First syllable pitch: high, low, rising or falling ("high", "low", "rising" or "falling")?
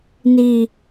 low